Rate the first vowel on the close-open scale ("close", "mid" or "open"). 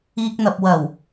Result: close